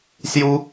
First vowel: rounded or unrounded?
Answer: rounded